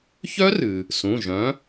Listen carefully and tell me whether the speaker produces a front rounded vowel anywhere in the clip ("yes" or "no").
yes